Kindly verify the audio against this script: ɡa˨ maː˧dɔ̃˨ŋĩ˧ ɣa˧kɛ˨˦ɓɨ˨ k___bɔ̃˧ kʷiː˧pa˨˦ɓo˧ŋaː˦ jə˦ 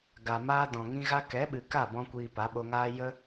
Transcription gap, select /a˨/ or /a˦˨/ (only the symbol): a˦˨